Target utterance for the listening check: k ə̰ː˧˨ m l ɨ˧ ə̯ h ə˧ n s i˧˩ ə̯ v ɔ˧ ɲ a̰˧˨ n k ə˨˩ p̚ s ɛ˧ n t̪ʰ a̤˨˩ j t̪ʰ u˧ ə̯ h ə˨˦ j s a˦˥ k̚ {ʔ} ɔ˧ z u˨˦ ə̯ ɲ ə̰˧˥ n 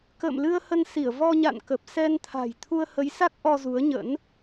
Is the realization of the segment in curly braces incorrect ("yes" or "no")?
no